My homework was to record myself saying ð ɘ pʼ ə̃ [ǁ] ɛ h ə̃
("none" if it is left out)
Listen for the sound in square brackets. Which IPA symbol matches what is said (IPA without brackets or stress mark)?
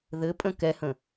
k